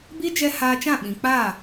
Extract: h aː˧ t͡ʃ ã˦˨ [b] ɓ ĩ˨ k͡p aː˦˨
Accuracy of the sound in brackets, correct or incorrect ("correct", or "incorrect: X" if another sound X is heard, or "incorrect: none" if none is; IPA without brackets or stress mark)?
incorrect: none